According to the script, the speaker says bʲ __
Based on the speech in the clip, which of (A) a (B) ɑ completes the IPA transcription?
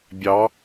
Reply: B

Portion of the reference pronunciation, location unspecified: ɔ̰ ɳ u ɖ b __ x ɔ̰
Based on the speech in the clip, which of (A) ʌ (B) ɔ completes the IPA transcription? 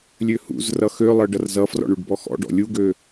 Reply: B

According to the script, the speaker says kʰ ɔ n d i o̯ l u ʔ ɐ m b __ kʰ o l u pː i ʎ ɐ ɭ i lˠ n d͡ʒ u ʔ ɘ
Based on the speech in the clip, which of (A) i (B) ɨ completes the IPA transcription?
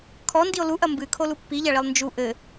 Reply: B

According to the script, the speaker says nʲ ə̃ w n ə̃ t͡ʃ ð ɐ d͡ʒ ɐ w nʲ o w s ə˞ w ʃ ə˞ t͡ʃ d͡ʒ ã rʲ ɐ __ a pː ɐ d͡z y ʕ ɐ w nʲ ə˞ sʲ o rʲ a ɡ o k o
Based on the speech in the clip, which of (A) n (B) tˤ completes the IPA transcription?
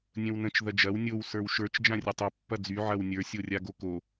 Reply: B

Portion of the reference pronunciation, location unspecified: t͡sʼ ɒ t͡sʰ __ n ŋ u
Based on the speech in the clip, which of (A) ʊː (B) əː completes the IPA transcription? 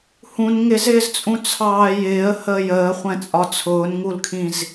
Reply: A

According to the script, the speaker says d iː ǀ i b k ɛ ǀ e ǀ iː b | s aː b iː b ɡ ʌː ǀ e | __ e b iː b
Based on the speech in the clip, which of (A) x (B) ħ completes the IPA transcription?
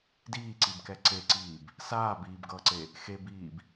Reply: A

